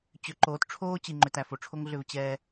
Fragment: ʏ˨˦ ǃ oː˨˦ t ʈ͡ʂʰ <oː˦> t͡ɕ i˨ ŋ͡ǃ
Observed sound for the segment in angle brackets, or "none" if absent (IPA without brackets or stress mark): oː˦